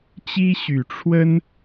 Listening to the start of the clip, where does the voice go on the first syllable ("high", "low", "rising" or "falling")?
high